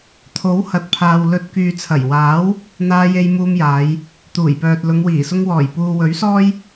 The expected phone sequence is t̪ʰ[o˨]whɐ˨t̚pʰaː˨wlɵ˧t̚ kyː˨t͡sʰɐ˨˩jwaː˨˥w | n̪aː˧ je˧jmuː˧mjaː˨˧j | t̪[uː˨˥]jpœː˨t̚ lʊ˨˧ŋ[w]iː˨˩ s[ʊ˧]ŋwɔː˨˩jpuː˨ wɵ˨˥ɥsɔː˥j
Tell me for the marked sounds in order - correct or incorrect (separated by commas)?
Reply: incorrect, incorrect, correct, correct